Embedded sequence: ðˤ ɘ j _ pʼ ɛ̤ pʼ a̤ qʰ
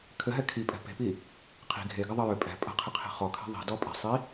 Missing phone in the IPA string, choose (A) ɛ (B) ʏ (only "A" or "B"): B